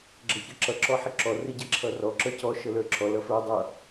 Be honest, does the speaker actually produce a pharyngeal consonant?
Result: yes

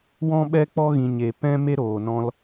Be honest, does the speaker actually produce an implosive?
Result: yes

